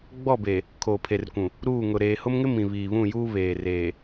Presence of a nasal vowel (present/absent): present